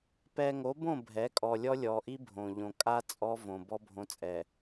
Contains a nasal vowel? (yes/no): yes